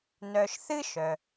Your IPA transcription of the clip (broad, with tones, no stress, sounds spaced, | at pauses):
n œ˨ ʃ θ ɨ˥ ʃ œ˩